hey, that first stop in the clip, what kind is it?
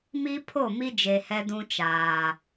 aspirated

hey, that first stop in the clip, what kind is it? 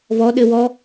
implosive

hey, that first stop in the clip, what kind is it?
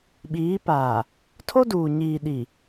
implosive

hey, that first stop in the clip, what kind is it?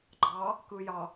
click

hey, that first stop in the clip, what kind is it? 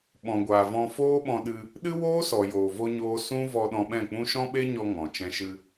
implosive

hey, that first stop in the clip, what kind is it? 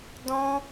plain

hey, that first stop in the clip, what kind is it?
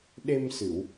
implosive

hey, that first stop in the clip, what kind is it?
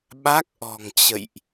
implosive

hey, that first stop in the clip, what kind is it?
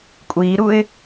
ejective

